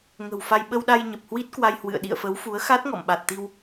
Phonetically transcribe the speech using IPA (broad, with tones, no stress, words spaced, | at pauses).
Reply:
ŋə̤˨˩wfa˧j ɓə˧wɗa˧jɲə˨˩p̚hwi˦˥t̚ kwa˧jhwɨ̰˧˨ə̯ ɗḭ˧˨ə̯fə˨˦wfu˨˦ə̯ xa˦˥t̚ŋɔ̰˧˨mɓa˨˩t̚ t̪i˧w